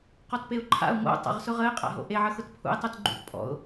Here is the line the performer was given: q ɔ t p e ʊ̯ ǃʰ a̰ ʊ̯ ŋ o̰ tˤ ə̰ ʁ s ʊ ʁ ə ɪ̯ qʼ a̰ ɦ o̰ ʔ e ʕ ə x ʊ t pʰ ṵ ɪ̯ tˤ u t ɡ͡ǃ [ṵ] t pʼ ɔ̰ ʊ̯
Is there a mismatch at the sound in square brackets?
no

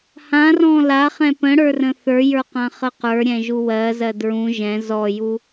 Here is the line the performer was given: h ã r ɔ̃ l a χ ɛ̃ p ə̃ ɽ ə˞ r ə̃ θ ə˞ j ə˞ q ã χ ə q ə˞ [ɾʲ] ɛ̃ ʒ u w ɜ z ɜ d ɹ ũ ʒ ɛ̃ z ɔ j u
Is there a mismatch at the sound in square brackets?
no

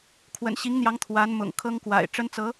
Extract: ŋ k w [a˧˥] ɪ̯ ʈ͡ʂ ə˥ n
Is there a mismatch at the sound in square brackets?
yes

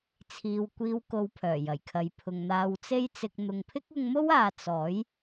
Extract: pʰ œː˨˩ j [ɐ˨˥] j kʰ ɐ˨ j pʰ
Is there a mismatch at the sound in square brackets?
yes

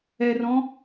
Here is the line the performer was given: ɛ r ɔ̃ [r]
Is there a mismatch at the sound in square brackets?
yes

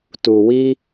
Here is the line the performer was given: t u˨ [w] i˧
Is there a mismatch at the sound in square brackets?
no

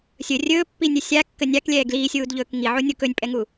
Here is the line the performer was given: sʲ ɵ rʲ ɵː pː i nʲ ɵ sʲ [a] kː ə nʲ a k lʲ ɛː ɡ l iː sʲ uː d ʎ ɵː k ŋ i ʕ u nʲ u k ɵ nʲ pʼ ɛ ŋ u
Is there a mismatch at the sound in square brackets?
no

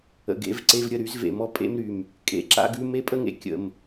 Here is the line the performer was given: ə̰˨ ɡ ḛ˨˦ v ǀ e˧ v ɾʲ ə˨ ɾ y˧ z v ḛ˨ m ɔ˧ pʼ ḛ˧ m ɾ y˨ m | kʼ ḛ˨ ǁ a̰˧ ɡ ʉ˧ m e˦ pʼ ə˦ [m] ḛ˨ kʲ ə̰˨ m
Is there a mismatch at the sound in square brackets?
yes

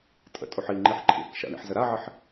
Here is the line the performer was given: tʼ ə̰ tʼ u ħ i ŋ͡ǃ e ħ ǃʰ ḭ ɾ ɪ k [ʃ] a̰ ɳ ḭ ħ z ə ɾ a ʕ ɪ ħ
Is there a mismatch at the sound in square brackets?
no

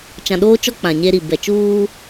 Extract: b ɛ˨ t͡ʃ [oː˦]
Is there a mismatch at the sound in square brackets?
yes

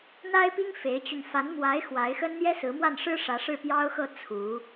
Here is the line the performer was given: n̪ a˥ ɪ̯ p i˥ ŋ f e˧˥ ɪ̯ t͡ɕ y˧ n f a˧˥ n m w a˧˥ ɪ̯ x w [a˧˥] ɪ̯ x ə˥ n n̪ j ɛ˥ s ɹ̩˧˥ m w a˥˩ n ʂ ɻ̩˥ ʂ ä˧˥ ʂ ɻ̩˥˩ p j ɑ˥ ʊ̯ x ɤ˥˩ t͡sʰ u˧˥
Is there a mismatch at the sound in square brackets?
no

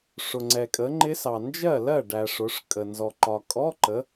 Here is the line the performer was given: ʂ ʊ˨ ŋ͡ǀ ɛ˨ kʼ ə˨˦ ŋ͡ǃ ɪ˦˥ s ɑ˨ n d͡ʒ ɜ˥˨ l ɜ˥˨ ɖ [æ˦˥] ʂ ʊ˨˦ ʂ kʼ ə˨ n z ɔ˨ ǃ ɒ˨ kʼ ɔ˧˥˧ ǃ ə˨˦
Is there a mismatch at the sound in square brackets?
yes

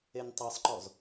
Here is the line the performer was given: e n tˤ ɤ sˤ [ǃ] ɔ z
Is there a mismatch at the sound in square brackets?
no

